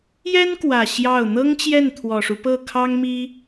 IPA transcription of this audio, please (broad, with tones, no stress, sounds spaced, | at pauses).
j ɛ˥ n k w ä˨˩ ɕ j ɑ˥˩ ʊ̯ n̪ ɤ˥ ŋ t͡ɕ j ɛ˥˩ n t̪ʰ w ɔ˨˩ ʂ u˦ p ɤ˥˩ kʰ ɑ˥ ŋ m i˥